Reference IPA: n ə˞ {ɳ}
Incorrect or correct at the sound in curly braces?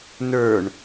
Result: correct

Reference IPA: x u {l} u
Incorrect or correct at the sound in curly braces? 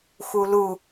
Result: correct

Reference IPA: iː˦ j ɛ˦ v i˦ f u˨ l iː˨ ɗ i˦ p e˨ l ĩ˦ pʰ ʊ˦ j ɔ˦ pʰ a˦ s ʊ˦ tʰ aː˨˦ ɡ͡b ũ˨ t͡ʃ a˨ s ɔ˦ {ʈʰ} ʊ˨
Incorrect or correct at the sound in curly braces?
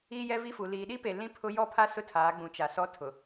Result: incorrect: tʰ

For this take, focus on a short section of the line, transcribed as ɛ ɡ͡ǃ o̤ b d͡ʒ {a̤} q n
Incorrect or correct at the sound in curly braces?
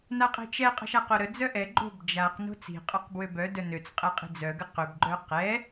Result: incorrect: a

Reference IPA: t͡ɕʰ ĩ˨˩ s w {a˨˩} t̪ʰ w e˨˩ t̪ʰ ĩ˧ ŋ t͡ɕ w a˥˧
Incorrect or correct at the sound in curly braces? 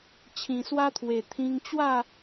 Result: incorrect: a˧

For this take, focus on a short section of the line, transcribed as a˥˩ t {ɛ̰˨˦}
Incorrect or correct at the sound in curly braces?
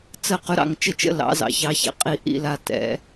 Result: correct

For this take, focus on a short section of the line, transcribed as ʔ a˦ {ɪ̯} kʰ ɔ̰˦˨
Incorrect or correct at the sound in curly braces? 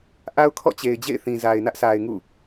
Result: incorrect: ʊ̯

